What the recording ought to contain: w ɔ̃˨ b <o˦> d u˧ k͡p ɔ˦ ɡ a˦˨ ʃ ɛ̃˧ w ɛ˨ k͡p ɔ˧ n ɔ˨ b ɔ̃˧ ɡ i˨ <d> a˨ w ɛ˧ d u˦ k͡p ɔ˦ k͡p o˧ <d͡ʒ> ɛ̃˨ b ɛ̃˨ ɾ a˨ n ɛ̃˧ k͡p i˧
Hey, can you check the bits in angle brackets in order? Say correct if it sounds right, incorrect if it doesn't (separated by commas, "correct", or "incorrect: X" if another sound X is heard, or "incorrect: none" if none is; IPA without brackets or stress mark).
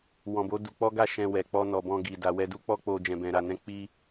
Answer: incorrect: o˨˦, correct, correct